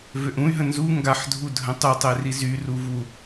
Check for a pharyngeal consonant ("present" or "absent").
present